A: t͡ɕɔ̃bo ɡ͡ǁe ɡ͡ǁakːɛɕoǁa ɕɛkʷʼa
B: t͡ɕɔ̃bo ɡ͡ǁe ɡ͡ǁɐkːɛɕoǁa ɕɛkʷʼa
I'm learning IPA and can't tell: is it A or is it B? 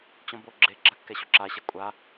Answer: A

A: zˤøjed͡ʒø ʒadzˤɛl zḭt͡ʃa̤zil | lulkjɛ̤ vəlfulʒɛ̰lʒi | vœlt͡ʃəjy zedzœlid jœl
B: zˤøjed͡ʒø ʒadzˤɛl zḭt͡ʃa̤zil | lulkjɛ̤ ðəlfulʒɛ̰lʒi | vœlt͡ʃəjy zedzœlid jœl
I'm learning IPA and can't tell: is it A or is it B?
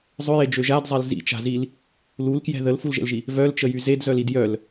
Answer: B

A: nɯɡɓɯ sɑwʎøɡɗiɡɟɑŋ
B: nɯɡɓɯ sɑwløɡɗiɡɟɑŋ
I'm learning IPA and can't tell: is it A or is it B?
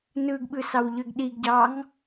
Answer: A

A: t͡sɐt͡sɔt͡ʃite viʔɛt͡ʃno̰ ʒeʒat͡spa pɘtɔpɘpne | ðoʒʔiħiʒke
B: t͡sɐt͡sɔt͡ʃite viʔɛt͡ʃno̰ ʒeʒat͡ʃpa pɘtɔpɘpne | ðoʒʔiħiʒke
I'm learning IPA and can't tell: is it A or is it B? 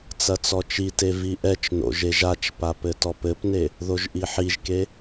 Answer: B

